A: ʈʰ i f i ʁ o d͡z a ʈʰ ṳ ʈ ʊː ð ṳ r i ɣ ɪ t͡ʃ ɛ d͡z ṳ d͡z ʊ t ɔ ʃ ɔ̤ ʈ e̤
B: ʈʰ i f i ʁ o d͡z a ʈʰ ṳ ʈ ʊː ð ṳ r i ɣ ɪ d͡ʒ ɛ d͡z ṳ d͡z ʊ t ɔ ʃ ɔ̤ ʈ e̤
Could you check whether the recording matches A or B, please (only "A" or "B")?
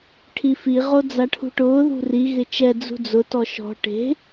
A